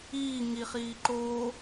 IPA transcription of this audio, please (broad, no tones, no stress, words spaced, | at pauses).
iː ŋiχiː ǃoː